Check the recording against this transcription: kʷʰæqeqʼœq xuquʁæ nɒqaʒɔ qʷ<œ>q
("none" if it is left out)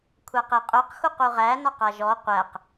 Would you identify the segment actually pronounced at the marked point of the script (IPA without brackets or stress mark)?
æ